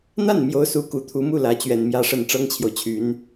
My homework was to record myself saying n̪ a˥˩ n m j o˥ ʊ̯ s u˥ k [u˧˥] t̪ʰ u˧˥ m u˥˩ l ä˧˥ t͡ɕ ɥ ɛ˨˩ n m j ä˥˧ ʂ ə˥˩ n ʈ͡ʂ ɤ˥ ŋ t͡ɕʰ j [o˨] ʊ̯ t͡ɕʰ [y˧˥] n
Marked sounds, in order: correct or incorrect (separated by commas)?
correct, correct, correct